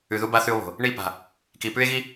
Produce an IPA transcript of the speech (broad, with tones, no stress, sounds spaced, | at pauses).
ʉ˨ ð u˦ b a˦ θ ʉ˦ o̯ β o̤˨ | ɳ i˦˨ p a̤˨ | k i˨ p ʉ˦ e̯ ɣ i˦